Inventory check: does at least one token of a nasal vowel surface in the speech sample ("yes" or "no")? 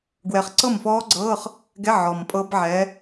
no